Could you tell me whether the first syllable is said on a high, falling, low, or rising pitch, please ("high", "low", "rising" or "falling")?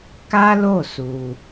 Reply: high